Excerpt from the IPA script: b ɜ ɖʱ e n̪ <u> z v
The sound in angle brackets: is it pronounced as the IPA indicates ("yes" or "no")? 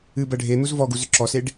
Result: yes